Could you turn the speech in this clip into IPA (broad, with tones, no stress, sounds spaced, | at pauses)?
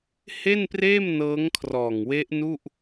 h e˥˩ n p r eː˥˩ m n ɤː˦˥ ŋ kʰ r ɔː˨˩ ŋ w e˦˥ ʔ n u˥˩ ʔ